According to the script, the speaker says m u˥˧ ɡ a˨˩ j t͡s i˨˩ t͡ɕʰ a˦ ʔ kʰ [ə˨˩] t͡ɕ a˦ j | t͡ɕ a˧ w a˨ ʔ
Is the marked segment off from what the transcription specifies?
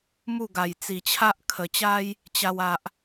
no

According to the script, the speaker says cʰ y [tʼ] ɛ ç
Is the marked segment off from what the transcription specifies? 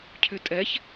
no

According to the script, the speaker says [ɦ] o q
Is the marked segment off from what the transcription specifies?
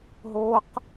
no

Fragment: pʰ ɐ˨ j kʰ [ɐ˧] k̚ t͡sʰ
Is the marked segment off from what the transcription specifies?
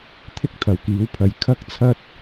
no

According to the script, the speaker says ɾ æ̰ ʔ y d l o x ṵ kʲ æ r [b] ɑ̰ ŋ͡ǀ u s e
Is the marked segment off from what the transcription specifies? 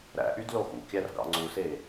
yes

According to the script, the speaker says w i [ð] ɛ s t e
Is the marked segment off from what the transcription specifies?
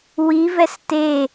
yes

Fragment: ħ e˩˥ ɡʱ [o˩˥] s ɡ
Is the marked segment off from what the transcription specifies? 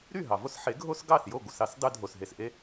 yes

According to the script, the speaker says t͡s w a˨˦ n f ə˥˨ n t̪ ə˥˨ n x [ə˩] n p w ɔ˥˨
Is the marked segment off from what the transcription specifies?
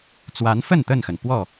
no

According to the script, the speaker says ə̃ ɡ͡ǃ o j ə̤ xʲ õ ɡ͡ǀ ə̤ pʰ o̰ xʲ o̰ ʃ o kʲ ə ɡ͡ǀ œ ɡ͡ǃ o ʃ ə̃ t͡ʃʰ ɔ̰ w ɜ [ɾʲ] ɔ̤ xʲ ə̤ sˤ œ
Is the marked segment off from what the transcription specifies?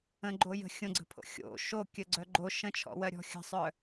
no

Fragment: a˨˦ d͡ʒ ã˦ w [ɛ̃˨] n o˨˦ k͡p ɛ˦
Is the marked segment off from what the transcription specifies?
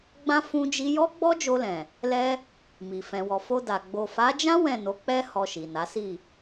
yes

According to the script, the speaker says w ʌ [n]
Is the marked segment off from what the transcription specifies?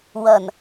no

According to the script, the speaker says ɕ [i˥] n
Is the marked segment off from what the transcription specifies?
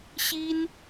no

